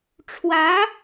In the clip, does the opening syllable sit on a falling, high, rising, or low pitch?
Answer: rising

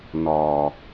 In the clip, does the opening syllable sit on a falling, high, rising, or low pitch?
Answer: low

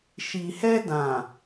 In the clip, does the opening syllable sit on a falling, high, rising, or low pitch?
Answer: low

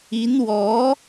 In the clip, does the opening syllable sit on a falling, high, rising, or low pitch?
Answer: rising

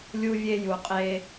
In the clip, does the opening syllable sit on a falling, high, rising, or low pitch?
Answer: high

